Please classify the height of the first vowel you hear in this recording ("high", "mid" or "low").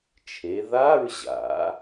mid